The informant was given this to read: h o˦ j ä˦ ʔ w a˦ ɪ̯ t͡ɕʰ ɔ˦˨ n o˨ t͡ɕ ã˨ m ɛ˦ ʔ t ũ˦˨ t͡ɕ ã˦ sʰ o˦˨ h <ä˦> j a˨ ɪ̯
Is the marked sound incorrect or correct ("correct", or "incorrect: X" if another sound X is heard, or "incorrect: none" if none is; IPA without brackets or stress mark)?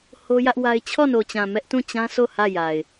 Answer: incorrect: ä˦˨